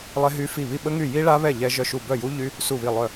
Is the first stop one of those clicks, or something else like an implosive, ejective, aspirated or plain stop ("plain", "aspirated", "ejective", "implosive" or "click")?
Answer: implosive